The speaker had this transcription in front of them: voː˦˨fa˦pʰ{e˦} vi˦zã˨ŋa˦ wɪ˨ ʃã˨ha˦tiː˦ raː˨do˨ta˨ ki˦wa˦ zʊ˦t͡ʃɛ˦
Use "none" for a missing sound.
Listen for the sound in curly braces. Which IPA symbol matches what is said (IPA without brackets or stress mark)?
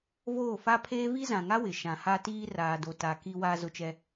eː˦